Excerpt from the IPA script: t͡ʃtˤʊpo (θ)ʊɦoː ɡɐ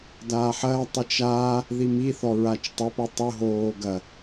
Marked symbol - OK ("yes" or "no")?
no